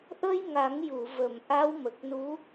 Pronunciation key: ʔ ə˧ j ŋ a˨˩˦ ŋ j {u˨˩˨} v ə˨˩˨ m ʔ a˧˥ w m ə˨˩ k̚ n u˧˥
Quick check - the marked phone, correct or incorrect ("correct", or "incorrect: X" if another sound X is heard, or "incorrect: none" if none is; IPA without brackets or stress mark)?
correct